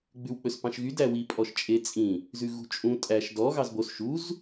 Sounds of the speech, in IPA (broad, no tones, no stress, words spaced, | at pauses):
ɡ͡bʉwk͡pɵspɑ̃ʃɣy dæwi pʼɔʃt͡ʃʼet͡sʼĩ | zʉɣṳt͡ʃʼũ tʼæʃ dɔ ɣɑzbos ʃuz